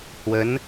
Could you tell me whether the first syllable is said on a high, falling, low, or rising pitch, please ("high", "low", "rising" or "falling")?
rising